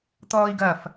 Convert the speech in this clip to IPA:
t̪ ɔː i̯ ɡ ɐ f

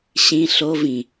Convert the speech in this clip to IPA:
ɕ ĩ ɬ o v ĩ

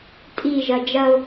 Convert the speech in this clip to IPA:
tʼ i ʒ ɐ d͡ʒ ɐ ʊ̯

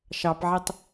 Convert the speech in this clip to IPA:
ʃ ɑ p ʕ e tˤ

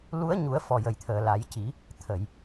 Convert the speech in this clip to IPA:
l u˧˥ ə̯ ɲ u˨˩˦ ə̯ f ɔ˨˩ j ə˨˩ j t̪ʰ əː˨˩ l a˨˩˦ j c i˨˩˦ | t̪ʰ ə˨˩˨ j

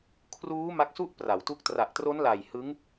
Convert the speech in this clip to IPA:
kʰ r uː˦˥ m a˦˥ k̚ s u˥˩ ʔ p r a˩˦ w t u˦˥ k̚ t r a˨˩ ʔ t r o˦˥ n l a˨˩ j h ɯ˦˥ ŋ

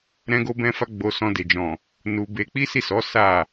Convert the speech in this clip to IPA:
ɾ ɛ̃˦ ɡ o˦ b ɛ̃˦ f a˦ ɡ͡b o˧ s ɔ̃˧ d e˨ d͡ʒ ɔ̃˨ | n u˧ b e˧ k͡p i˦ s i˦˨ s ɔ˨˦ s a˦˨

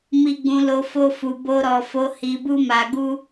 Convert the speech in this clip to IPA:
m i˧ ɡ͡b ũ˧ l o˧ f o˧ f u˨ b o˧ ɾ ɔ˨ f o˨˦ h i˧ b u˦ m a˧ ɡ u˦

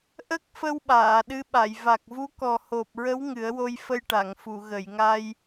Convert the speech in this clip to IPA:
ʔ ə˦˥ k̚ f ə˧ w ɓ aː˨˩˨ ɗ ɨ˧˥ ɓ a˨˩˨ j v a˨˩ k̚ v u˧˥ k ɔ˨˩ h o˨˩ p̚ ɹ ə˧˥ w ŋ ɨ˨˩˦ ə̯ w o˧ j f ə˧ j ʈ a˨˩˨ ŋ f u˨˩˨ ɣ ə˨˩˨ j ŋ a˧ j

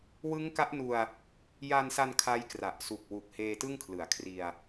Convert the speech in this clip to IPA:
w ɯ˦˥ ŋ k a˦˥ ʔ n u˧ a̯ | j a˧ n s a˧ n kʰ a˦˥ j k r a˨˩ ʔ s u˨˩ k̚ w u˨˩ k̚ h eː˧ t ɯ˥˩ ŋ kʰ l ɯ˩˦ a̯ kʰ r i˧ a̯

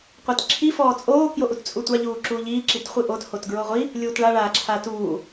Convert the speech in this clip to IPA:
qʷ i t ǁʰ i f ɔː t͡sʼ oː k j o ʔ u t t͡sʼ u tʷ a ʎ uː ǁ uː ʎ iː ǁ i t χʷ i ʔ o t h o t ɡ ɹ o ʁʷ i | lʲ uː t ɭ a ɭ aː ǁʰ aː t uː

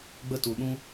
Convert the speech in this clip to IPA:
ɡ͡b ə˦ t u˧ ɗ ũ˦

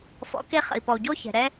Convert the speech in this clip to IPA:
f ɔ̰˨˦ k e˧ χ ə̰˨ i̯ p ɔ˨ u̯ ɟ o˧ ç ɛ̤˨ ɾ ɛ˧

